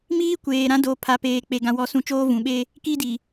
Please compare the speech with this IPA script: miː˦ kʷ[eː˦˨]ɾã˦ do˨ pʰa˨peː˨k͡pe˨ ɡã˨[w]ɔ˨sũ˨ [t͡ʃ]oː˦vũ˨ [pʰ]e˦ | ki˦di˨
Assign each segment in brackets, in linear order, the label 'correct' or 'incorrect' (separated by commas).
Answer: incorrect, correct, correct, incorrect